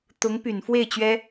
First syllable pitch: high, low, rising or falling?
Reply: rising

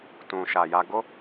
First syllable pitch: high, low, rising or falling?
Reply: low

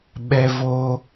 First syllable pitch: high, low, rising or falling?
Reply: high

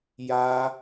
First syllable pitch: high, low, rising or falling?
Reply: high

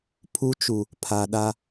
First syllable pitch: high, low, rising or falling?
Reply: high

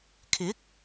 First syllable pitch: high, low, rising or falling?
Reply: rising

